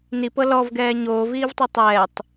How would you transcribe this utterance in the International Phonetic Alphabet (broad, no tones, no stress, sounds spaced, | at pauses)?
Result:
n i p ɤ l ɔ v ɡ ɛː ɲ oː v iː v tˤ i tˤ ɛː tˤ